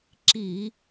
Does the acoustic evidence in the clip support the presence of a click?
yes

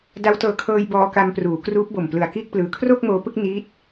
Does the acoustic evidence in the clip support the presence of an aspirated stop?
yes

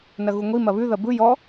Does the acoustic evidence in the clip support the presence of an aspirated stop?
no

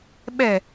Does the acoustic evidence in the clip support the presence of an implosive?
yes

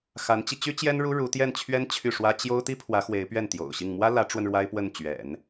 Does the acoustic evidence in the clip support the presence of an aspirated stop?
yes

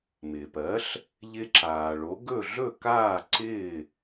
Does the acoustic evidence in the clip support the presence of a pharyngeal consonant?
no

